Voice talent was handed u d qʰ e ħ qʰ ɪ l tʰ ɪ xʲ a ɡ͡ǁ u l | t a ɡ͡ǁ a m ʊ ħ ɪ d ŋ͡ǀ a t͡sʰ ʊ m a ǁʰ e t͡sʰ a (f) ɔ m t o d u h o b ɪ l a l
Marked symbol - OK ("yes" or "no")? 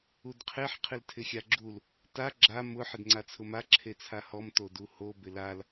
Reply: no